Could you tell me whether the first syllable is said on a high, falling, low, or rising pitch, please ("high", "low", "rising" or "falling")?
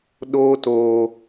high